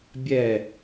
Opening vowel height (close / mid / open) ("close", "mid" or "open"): mid